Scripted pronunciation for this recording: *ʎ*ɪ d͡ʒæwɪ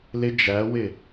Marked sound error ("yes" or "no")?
yes